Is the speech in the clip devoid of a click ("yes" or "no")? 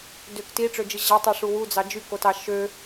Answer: yes